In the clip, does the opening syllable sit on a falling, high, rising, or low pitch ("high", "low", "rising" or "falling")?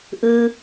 low